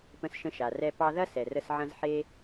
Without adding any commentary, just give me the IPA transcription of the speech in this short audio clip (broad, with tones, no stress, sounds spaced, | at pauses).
p ə̃˧ s ʃ ə̃˧ ʃ a˩ r ɛ˧ p ɑ˧ ð ɐ˥ s ɛ˩ r ə˧ s ʕ ɐ̃˧ z ħ e˧